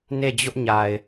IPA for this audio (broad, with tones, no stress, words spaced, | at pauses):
ne˦˨d͡ʑʊ˦ʔɲa˨ɪ̯